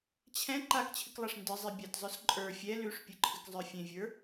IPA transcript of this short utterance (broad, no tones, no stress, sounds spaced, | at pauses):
t͡ɕʰ ɛ̃ ǃ a k t͡ɕʰ ɨ k lˠ a ʂ n d ɨ zˤ e bʲ a t zˤ ə˞ s ǃʼ ə˞ fʲ ɛ l ʉ ʂ pʲ ɨ ǃʰ ɨ k zˤ ə˞ fʲ ẽ vʲ ə˞